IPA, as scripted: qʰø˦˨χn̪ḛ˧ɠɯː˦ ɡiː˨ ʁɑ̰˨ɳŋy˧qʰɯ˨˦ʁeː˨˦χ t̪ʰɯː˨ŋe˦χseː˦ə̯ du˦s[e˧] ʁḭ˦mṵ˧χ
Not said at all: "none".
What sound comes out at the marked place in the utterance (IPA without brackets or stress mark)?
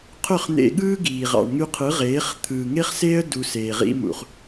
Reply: eː˧